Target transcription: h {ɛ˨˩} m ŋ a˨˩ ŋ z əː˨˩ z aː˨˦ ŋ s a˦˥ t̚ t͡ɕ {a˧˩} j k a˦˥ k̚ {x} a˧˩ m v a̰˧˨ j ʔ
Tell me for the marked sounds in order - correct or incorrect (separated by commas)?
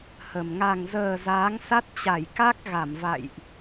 incorrect, correct, incorrect